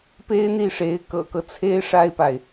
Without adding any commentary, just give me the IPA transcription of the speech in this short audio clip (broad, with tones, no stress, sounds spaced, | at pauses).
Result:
p e˥ ɪ̯ n̪ i˥˩ ʂ e˧˥ ɪ̯ k ɤ̰˨˩ k ɤ˦ t͡sʰ e˥ ɪ̯ ʂ a˥ ɪ̯ p a˨ ɪ̯